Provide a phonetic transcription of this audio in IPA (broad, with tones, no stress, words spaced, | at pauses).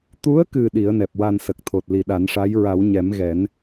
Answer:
t̪u˧˥ə̯kɨ˨˩ ɗi˨˩˦ə̯nɛ˨˩p̚wa˧nsə˨˩k̚ t̪ʰo˨˩t̚ li˨˩ɗa˨˩˦nʂa˧˥j ɹa˨˩˦w ɲɛ˨˩˦mɣɛ˨˩˦n